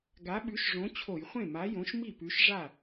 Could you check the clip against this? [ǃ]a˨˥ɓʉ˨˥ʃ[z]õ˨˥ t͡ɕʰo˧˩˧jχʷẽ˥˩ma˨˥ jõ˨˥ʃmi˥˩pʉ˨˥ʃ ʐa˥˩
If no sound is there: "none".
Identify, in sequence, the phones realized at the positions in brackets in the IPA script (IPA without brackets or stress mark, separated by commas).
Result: ɡ, ʐ